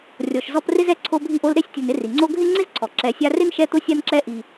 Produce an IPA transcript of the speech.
rʲ ɔ˨ ʃ z ɔ˦ p r ɪ˥ z ɛ˦ ǀʰ o˦ bʱ i˦ ʔ o˦ l ɾ e˥ sʲ tʲ ʊ˨ n ɪ˦ r i˩ ŋ͡ǀ o˦ ɡʱ ɪ˥ ŋ͡ǀ ɪ˥ z ǀʰ ɔ˩ ǁ ɛ˨ sʲ a˦ r ɪ˥ n ʃ ɛ˦ t̪ ʊ˦ sʲ a˦ n ǁ ɛ˦ ʔ i˨

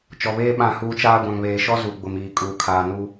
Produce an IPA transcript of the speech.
t͡ʃ ɔ˨ β eː˦ ɓ ã˦˨ h uː˦ t͡ʃ aː˦ ɡʷ ã˨ ŋ β eː˨ ʃ ɔ˦ z u˨ ɡ͡b ʊ˨ m iː˨ kʼ uː˨ kʰ aː˨ n u˦

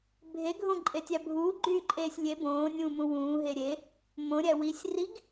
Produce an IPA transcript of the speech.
bʱ e ɡʱ õ ǃʼ e tʲ æ bʱ uː ɡ͡ǃ yː ǃʼ eː sʲ lʲ e b õː nʲ ũː m ũ w ũː ɦ e ɾʲ e | m õ ɾʲ æ w i sʲ r i ɡ

